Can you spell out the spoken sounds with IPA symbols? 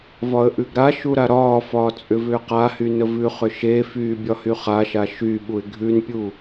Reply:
v ɒ ə̯ ʔ ʉ ɡ ɾ a ʃ u ɾ a ɾ ɒː f ɒː t͡sʼ ʏ v ʏː q a h y n ə v ʉ χ ʏ ʃ e f yː bʲ ɒ h y χ a ʃ a ʃ y ɓ u ɪ̯ ɡʱ ʉ n pʲ u

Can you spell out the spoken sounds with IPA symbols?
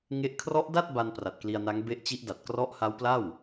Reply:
ŋ e˦˥ ʔ kʰ r ɔ˦˥ ʔ d a˥˩ t̚ b a˧ n p r a˨˩ t̚ k l i˧ a̯ n a˦˥ ŋ b e˦˥ ʔ t͡ɕ i˦˥ ʔ d a˨˩ t̚ k r ɔ˦˥ ʔ h a˦˥ w p l a˥˩ w

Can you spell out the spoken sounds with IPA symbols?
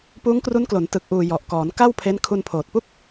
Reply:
p uː˦˥ ŋ k r u˦˥ n k l o˩˦ n t ɯ˨˩ k̚ ʔ uː˨˩ j ɔ˨˩ ʔ k ɔː˩˦ n k a˥˩ w pʰ e˦˥ n kʰ u˧ n pʰ oː˨˩ t̚ p u˥˩ k̚

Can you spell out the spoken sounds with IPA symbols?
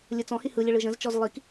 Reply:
lʲ ɯ t͡s ɔ̃ h i h ɯ lʲ ə ɭ ɯ ʒ ə̃ z t͡ʃ ɔ z lˠ i k

